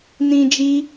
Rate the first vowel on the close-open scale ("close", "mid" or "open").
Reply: close